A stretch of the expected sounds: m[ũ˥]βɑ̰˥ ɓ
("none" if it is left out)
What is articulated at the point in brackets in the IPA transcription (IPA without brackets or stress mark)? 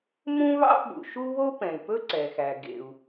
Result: ũ˥